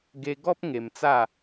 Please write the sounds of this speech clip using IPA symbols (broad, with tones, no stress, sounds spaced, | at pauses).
ɡ e˧ ɡ ɔ˦ p̚ ŋ e˧ m t͡s a˥˧